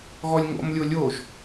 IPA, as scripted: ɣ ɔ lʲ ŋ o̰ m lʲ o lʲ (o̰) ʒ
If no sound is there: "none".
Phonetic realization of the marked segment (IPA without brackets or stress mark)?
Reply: o